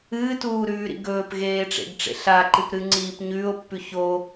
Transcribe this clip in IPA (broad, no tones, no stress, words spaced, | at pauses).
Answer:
ɨːtuːɾʉːɾḭ ɡɵːpɣeːʈ͡ʂḛɡʈ͡ʂḛ ɬaǃɨpɾɨŋ͡ǀiːp ɲʉːo̯pːʉ ço